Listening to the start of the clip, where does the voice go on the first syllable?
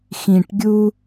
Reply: low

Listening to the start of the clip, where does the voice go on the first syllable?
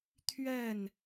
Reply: falling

